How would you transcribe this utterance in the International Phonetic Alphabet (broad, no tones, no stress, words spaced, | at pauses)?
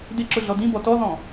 dɪǁʊ ɮɔdĩbɔ tɔðɔ̃